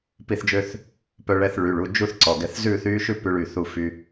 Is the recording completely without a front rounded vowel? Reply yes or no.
no